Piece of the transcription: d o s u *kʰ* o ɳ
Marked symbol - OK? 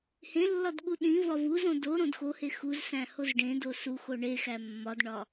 no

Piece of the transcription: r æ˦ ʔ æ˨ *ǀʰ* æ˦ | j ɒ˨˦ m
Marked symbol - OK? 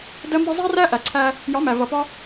yes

